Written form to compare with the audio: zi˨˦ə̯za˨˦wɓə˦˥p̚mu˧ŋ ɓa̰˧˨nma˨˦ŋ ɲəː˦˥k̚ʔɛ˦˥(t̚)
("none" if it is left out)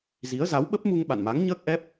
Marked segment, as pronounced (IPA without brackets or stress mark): p̚